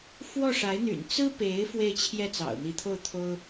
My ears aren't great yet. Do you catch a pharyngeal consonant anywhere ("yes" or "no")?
no